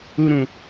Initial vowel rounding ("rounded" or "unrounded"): rounded